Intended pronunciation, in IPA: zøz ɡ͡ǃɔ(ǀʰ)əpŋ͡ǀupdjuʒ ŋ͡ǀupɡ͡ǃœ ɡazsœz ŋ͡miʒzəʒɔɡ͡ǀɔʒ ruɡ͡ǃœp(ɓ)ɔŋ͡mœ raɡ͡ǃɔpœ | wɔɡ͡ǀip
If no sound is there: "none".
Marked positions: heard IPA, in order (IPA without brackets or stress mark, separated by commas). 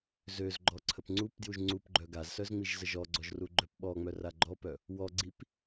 ǀʰ, ɓ